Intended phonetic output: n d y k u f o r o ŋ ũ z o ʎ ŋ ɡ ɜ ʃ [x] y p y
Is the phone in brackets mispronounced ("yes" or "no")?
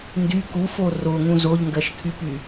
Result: yes